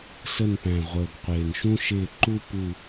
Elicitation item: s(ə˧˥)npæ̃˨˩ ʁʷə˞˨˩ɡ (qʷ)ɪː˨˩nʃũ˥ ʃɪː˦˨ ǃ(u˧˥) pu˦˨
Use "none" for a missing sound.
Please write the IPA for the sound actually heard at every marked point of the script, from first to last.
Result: ə˦˨, qʷ, u˥

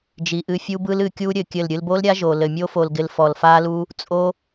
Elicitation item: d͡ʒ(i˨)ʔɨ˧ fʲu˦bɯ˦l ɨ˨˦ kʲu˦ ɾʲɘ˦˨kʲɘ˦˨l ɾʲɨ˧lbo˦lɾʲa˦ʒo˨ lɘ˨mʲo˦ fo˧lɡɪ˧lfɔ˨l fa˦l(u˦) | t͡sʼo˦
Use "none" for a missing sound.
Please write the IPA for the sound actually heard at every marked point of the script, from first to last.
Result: i˨, u˦

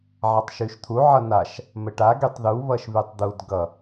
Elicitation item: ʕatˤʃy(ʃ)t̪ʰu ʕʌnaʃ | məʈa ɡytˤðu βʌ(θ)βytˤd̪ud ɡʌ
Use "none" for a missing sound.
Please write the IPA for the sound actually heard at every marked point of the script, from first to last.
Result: ʃ, ʃ

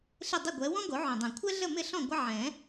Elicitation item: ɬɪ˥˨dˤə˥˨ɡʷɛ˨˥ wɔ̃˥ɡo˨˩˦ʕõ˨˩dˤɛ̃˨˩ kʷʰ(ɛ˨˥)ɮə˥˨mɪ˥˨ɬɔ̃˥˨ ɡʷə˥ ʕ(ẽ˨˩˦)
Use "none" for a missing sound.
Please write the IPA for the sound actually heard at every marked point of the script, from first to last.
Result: ɛ˥, ɛ̃˨˩˦

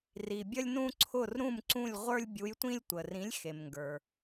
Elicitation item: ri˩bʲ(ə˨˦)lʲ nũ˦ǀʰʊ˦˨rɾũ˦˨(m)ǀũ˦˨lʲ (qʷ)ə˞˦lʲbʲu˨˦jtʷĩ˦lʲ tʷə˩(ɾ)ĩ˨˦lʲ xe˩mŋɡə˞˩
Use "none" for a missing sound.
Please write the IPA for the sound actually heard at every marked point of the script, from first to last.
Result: ə˦, m, ʁʷ, r

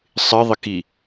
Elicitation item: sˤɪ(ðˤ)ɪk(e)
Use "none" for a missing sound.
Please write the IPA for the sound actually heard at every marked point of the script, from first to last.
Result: ðˤ, i

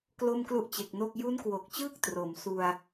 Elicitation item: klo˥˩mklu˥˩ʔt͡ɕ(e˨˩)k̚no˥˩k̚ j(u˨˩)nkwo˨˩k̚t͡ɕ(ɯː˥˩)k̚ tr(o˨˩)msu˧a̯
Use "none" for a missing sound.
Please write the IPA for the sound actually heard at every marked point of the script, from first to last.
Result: e˨˩, u˦˥, ɯː˥˩, o˩˦

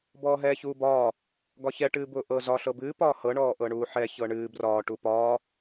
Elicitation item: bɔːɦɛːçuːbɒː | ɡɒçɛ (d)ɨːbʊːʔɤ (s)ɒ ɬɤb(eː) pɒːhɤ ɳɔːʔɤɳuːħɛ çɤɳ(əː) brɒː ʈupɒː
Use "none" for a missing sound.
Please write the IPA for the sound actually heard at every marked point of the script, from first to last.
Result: ʈ, z, ɨː, ɨː

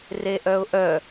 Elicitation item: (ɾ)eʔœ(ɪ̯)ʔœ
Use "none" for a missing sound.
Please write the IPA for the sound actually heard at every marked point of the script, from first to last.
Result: r, ʊ̯

